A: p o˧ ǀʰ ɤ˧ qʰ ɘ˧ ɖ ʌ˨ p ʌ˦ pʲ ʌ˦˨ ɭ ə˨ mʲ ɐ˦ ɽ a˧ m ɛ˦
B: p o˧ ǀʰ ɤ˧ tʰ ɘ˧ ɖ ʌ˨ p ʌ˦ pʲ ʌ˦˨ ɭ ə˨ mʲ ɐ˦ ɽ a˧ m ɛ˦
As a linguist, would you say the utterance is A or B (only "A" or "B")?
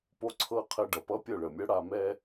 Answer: A